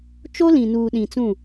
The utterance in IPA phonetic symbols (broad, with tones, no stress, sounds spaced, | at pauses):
t͡ʃ o˦ l ĩ˨ n uː˨ ɗ ĩ˨ t͡s ũ˦˨